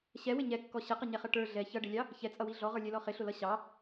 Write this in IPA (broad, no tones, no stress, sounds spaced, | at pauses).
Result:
ɕ ɛ w ɪ ɲ ɛ kː ɔ ɕ ə q ə ɲ ɛ χ ʌ ʈ ə˞ ɮ ɛ ç ʌ ɖ ɪ lʲ ɑ | ç ɛ t͡sʼ ʌ w i ɮ ɔ ʁ ə˞ lʲ ɛ l ɔ χ ɪ ɬ ʊ l ʌ ɕ ɑ